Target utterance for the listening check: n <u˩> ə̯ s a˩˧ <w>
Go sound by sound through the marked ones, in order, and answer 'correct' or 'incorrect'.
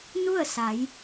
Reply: incorrect, incorrect

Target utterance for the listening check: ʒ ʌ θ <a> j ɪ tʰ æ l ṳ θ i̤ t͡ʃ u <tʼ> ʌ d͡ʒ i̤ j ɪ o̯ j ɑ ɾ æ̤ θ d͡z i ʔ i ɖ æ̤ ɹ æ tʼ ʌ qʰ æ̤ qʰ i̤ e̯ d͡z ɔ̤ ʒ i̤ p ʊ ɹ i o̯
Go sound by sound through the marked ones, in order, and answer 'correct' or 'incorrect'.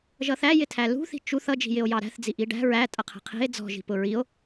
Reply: incorrect, incorrect

